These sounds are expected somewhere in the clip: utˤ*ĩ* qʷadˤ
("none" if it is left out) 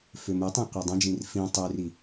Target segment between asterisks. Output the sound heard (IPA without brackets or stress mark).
ẽ